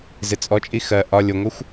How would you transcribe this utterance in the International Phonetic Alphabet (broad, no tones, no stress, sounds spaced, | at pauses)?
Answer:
z ɪ t͡sʼ ɔ t͡ʃʼ i x ɜ ʔ ɒ lʲ ʊ ŋʷ ɪ xʷ